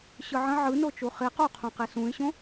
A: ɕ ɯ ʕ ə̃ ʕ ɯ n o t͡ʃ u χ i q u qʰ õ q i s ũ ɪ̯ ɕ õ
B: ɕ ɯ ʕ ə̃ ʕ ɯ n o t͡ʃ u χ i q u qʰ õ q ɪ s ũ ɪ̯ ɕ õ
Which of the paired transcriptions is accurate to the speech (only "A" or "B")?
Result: A